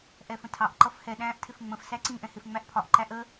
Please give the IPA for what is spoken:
ʔ ɛ f ə̃ tʰ ɑ ʔ ǃ ʌ f h ɛ ɗ æ̃ː ʔ tʰ ɪ f ŋ͡m ə̃ f s æ ǀ ĩ ʔ ɛ̃ h ɪ f ŋ͡m æ ʔ pʰ ɒ ʔ ǃ æ ʔ ə

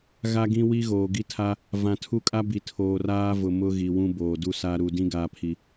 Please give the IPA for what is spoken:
ɣ a˦ ɡ ĩ˦ w i˦ ɣ oː˨ ɡ i˦ tʰ a˦ | v ã˨ tʰ u˦ kʼ a˦ b i˨ tʰ oː˨ r aː˦ v ʊ˨ m ʊ˦ ɣ i˨ w ũ˦ b oː˨ d u˦ s a˦ ɾ u˨ d ĩ˦ ɡ aː˦ pʰ i˦

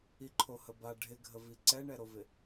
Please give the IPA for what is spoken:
i ǃʰ o h ə b a ɖʱ ɪ ɡʱ ə v i ǀ ɛ ɳ ɛ ɾ o v ɪ

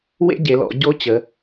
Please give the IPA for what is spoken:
w ḛ˥ ɟ e˩˧ l ɔ̰˩˧ ɟ o˥ t͡ɕ ə˩˧

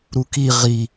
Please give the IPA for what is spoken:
ɾ u k i ʁ i

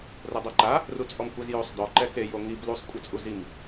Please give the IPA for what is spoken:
r o dˤ ɤ ǃ a | r u t͡sʼ ɔ m kʷ e z j o sˤ d ɔ ǃ ɛ k e j o ŋ i b l u sˤ kʷʼ ɯ t͡sʼ u z i m

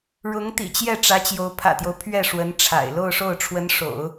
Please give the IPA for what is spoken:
ɻ ʊ˧˥ ŋ t̪ ḭ˨˩ t͡ɕ j ɛ˥˩ ʈ͡ʂ ä˧˥ t͡ɕ j o˧˥ ʊ̯ pʰ ä̰˨˩ t̪ j o˦ ʊ̯ pʰ ɥ ɛ˥˩ ʂ w ə˧˥ n ʈ͡ʂʰ a̰˨˩ ɪ̯ l o˥˧ ʊ̯ ʂ o˥˩ ʊ̯ ʈ͡ʂʰ w ə˧˥ n ʂ o̰˨˩˦ ʊ̯

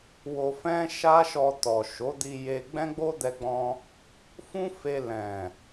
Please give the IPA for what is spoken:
w o˧ f ɛ̃˦ ʃ a˦ ʃ ɔ˧ t ɔ˨ ʃ o˨˦ d i˧ j e˧ ɡ͡b ɛ̃˦ ɡ͡b o˦ d ɛ˧ ɡ͡b ɔ̃˧ | f ũ˦ f e˧ l ɛ̃˨

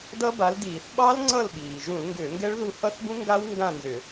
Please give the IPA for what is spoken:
d ʌ˦˥ b a˨˥ l d iː˧˩˧ θ ɓ ɑ˦˥ l ŋ͡ǀ ʌ˦˨ l ɓ iː˩ ʒ ũ˧˩˧ l ŋ ɡ ʏː˧˩˧ ŋ ɡ ɛ˦˥ ɭ ð u˦˨ h ʌ˦˥ θ b ũ˦˥ ŋ ɡ a˦˥ w ŋ ɡ ã˦˨ n z ʏ˧˩˧

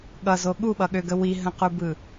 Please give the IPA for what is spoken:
ɠ ʌ z o ɠ u ɓ ʌ ɠ ø ɡ ə w i ɦ ə̃ q u b ɯ

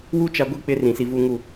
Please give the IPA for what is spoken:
w u˦ t͡ʃ a˦ ɡʷ i˦ k͡p ɪ˦ r ĩ˨ s i˨ v u˨ ŋ u˨

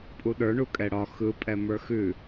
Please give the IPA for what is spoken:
pʼ u ɗ ə˞ ɳ u kʼ ɛ ɽ ɒ x ɯ pʼ ɛ m ə˞ x ʉ

